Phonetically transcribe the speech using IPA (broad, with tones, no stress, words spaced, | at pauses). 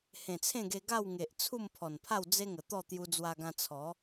hẽ˨˩t͡sʰẽ˥˧ɡe˧ ɡa˥˧wŋe˨ʔ t͡sʰu˥˧mpʰɔ˨˩npʰa˥˧w d͡ze˦ŋə˨˩t̪ɔ˥˧ t̪ju˧d͡zwa˧ɡã˧ t͡sʰɔ˨˦